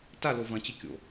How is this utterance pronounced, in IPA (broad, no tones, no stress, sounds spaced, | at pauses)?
t a l o v ɐ̃ t͡ɕ ɨ kʲ o̰